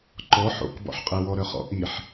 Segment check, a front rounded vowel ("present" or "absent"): present